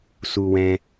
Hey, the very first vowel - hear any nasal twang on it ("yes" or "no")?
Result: no